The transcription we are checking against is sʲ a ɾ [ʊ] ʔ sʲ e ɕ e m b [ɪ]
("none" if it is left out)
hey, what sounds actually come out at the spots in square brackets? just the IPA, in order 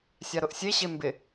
ʊ, ɪ

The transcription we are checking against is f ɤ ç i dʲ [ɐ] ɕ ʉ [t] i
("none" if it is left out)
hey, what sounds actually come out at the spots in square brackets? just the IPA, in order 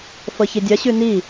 ɐ, n

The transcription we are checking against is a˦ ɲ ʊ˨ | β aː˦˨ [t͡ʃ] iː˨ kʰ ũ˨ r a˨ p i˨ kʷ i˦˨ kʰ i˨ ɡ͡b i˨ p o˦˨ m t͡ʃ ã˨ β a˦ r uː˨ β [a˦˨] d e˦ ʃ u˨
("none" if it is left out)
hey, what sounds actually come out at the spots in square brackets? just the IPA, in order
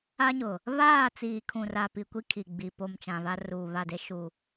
t͡s, a˦˨

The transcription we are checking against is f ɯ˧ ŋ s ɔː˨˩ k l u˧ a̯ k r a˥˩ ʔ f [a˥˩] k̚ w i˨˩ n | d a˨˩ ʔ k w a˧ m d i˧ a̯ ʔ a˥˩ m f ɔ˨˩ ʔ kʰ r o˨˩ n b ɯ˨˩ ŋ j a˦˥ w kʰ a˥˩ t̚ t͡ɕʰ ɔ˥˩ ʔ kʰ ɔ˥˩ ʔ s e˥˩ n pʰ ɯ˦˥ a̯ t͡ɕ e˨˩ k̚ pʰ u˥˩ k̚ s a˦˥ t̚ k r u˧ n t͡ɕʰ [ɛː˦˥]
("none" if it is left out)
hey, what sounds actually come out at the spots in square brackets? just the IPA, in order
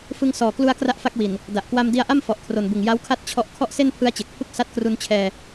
a˥˩, ɛː˧

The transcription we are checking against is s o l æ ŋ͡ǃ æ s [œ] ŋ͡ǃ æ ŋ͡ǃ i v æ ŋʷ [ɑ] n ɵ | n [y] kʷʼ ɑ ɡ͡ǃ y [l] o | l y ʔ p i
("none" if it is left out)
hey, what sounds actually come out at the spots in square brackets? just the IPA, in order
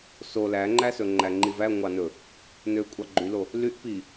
ɵ, ɑ, ø, l

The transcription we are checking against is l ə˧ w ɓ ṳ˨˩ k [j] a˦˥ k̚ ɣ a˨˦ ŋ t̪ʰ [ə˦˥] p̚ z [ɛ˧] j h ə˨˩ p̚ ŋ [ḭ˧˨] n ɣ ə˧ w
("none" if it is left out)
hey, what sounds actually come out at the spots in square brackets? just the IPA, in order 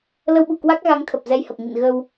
w, ə˨˩, ɛ˧, ḭ˧˨

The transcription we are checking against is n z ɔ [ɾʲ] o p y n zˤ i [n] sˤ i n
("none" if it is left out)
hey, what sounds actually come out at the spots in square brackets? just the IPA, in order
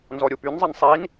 ɾʲ, n

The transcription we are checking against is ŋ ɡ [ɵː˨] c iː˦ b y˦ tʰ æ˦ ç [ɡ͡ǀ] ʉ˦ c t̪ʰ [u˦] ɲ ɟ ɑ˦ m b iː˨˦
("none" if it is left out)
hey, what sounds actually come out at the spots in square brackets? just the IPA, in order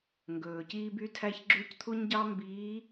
ɵː˨, ɡ͡ǁ, u˦

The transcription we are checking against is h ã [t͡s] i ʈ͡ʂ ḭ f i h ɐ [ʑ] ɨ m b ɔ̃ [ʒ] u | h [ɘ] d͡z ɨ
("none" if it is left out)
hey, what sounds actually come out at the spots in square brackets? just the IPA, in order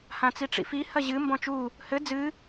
t͡s, ʑ, t͡ʃ, ɘ

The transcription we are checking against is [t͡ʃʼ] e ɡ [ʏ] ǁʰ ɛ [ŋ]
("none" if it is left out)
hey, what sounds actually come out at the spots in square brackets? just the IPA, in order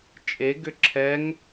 t͡ʃʼ, ʏ, ŋ

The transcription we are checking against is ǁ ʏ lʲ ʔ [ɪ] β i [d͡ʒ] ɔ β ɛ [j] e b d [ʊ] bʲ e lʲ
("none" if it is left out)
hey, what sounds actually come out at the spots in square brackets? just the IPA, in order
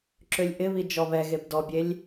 ɪ, d͡ʒ, ɣ, ɔ

